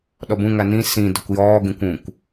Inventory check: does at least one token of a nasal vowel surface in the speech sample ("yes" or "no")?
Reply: yes